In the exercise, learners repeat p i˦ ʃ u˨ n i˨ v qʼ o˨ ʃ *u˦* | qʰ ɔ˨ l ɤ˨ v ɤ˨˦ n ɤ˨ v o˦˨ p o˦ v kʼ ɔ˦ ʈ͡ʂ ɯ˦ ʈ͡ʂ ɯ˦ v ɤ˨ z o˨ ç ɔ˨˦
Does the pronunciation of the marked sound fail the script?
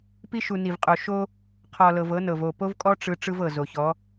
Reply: yes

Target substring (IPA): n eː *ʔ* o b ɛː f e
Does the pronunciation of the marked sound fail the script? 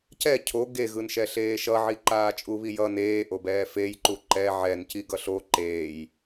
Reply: no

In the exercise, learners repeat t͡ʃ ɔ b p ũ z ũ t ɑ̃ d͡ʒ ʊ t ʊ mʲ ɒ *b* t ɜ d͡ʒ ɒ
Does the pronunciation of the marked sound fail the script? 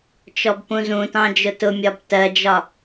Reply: no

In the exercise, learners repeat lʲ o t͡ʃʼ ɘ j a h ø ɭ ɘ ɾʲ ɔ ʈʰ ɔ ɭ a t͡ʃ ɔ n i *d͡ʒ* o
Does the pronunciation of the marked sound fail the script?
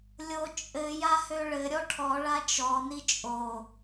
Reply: yes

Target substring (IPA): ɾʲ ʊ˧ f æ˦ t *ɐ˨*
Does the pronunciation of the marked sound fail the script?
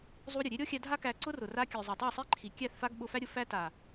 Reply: yes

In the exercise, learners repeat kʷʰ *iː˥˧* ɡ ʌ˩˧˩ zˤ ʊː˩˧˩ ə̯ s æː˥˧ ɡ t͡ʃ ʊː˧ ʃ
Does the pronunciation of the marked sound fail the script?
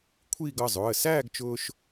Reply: no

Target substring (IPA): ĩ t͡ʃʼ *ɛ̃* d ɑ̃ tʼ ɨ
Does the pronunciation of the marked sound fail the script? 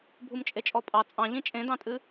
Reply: yes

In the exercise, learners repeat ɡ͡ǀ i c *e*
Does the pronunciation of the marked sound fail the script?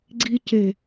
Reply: no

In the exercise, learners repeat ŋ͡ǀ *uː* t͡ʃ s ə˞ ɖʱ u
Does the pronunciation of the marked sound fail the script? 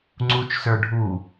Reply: yes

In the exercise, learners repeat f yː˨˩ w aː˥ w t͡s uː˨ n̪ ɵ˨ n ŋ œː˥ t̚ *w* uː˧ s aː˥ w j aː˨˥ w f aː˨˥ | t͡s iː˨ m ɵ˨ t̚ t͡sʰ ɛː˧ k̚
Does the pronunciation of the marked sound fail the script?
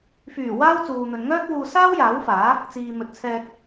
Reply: no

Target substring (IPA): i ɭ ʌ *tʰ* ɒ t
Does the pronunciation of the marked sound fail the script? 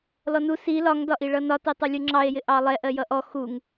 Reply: yes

